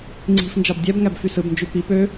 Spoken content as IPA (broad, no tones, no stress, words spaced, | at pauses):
ŋ͡ǀi̤f nd͡ʒɑbdʲæbŋæb fysɯbnd͡ʒy pi pø